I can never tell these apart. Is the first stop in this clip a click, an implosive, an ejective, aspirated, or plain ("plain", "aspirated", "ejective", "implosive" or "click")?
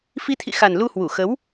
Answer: aspirated